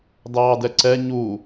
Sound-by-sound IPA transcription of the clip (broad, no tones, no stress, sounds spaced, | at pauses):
d ɑː d ɛ ǀ ɛ ɲ u